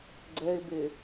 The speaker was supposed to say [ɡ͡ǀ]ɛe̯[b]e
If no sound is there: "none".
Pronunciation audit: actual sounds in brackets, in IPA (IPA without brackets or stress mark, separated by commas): ɡ͡ǀ, b